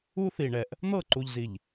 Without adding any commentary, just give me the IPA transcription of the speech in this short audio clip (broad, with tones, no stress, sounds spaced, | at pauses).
u˦ θ i˨ ɳ ɛ˨ ʔ | n̪ ɤ˦˨ ǃ u˨ ʎ z i˨ ʎ